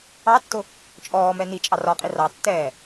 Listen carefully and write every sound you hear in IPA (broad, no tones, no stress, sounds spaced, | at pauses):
ɑ tː ʊ | t͡ʃʼ ɔː m ɛ n i t͡ʃʼ ɑ r ɒ qʼ i r ɑ tː ɛː